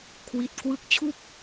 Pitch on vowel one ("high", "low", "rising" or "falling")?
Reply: low